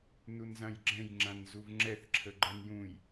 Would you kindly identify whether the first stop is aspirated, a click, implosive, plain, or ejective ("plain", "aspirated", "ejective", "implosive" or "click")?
click